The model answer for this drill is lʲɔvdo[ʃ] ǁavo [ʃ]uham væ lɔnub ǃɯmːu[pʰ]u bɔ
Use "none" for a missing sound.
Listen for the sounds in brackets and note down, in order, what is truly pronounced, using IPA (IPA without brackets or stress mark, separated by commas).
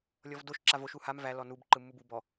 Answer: ʃ, ʃ, b